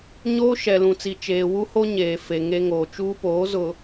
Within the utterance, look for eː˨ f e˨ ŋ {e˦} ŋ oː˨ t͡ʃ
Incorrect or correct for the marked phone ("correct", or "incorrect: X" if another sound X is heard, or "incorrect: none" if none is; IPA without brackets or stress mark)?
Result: correct